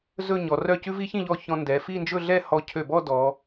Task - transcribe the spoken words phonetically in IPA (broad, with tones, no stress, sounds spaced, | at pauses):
z ɵ˥˧ ɲ ɔ˩˧ r œ˥˧ c ʉ˥ v i˥ ç ĩ˥˧ ʎ ɔ˥˧ ç ɔ̃˧ n d ɛ˩˧ f i˥˧ n d͡ʒ ɵ˥˧ ɮ ɛ˥˧ h ɔ˧ cʰ ø˧˩ b ɔ˥˧ d ɔ˩˧